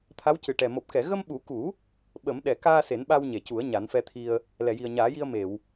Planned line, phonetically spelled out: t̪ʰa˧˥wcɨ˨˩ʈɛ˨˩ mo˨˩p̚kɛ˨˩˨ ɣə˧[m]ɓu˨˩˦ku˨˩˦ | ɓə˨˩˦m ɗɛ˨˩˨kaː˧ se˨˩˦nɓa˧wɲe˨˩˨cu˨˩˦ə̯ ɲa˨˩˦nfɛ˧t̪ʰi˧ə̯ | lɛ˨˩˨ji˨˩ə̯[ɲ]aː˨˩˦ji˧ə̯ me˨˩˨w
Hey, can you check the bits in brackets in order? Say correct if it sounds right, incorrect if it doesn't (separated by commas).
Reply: correct, correct